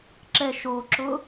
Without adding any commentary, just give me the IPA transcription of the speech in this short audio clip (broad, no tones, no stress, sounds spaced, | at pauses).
ǁ ɛ ʃ o ǁ ʊ